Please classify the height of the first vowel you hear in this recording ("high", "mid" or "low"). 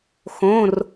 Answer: mid